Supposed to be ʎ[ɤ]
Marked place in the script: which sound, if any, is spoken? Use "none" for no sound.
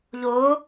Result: o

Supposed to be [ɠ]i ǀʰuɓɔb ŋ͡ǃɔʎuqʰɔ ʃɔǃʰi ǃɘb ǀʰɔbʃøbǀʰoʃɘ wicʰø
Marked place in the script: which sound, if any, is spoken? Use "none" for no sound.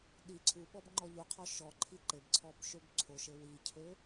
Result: ɗ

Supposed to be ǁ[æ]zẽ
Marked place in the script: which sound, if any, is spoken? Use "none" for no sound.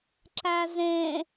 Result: æ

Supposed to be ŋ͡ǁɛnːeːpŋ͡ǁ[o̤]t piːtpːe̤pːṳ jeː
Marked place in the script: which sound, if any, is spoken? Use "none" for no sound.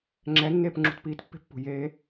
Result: ṳ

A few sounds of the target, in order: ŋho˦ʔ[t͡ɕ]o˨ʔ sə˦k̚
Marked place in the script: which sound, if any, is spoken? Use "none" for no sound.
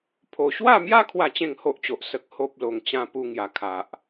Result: t͡ɕ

